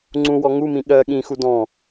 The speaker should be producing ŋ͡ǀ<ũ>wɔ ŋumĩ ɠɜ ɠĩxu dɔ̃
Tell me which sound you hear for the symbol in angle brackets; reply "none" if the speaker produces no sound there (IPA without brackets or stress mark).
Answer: ũ